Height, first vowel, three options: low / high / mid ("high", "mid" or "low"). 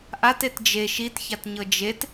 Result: low